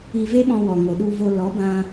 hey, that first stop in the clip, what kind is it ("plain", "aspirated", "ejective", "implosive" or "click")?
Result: implosive